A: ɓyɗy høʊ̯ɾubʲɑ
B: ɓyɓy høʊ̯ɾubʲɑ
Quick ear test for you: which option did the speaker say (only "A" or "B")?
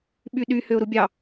A